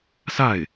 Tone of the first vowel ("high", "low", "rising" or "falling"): falling